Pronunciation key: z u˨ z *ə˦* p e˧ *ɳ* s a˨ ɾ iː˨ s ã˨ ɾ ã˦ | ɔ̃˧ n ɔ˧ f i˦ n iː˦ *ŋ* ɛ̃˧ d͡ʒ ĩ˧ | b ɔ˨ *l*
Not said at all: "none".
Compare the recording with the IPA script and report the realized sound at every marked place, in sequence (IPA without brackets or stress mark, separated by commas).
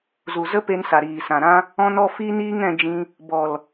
ə˦, n, ŋ, l